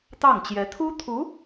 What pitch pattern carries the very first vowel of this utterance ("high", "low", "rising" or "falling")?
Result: falling